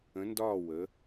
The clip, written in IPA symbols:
ə̃˨˦ n d ɒː˦˨ w ə˨˦

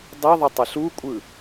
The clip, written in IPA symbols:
dˤ i ðˤ ʌ tˤ e ɬ u kʷʼ ɯ

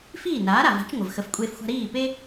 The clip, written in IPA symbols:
f iː˥˩ n aː˩˥ ɾ a˩ v a̤˩˥ t͡ʃ ŋʷ ə˩ v x ə˩˥ f kʷʼ eː˧ f xʷ a̤˧ ɾ iː˥˩ p e˥

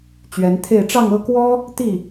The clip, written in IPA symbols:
t͡ɕ ɥ ɛ˧˥ n t̪ʰ e˥˧ ɪ̯ ʈ͡ʂ ɑ˥˧ ŋ ɤ˥˩ k w ɔ˥ | t̪ i˥˩

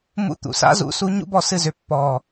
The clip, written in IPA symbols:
m ṵ˧˥ t̪ ṵ˩ s a̰˥ z ṵ˧˥ s u˧˥ ɲ ṵ˥ b ɔ˥˩ s ɨ˥˩ z ʏ˧˩ pː ɔ˧˩

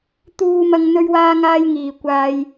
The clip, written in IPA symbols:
t̪ uː˥ m ɐ˥ ŋ n̪ ɵ˥ ɥ w aː˥ ŋ aː˥ j ŋ iː˧ kʷ aː˥ j

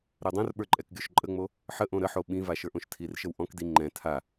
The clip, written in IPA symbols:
ɾ ɛ dˤ õ r ɓ ə˞ ǃʼ ɛ k ɡʲ o ʃ ǃʼ ə ŋ͡m o | ħ ə ʔ õ ɾ ə ħ o ɓ ĩ v a ʃ ə˞ ʔ õ ʃ tʰ i r ʃ ə w ʔ ɔ̃ k d i ŋ͡ǃ ɛ̃ tʰ a

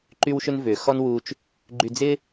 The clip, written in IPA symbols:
ǃ y˧ w ʃ ʏ˧ n v ʏ˩ x ɔ˥ n w u˧ t͡ʃ | ɡ͡ǃ y˧ d͡z ɪ˥

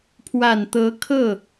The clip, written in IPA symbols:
pʰ w a˨˩ n t̪ ɤ˧˥ kʰ ɤ˥˩

